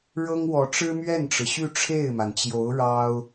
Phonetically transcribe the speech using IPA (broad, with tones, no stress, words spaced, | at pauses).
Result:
ɻɤ˥ŋwɔ˧˥ ʈ͡ʂɻ̩˥mɥɛ˥˩nʈ͡ʂɻ̩˩ɕy˥˧ ʈ͡ʂʰe˥˩ɪ̯ma˩nt͡ɕjo˧˥ʊ̯ ɻɑ˥ʊ̯